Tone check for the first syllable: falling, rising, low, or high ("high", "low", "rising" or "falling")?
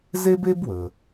high